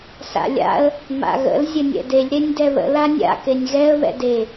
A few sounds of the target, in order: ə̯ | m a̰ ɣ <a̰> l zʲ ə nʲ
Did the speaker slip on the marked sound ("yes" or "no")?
yes